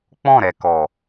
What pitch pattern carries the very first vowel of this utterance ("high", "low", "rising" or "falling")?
falling